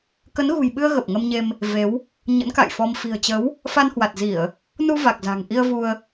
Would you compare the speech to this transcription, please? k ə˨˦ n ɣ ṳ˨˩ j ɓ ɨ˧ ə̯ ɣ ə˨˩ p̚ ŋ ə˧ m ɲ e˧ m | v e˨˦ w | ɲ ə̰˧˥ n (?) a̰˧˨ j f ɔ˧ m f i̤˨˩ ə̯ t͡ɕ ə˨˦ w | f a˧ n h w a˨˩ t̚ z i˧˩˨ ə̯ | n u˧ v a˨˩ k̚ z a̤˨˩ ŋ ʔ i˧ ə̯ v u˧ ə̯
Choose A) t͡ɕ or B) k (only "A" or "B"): B